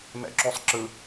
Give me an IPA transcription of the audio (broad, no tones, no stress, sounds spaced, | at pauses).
m ɛ̰ ǁ o sˤ ǁ ɯ